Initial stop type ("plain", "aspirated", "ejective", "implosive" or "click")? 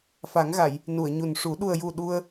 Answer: implosive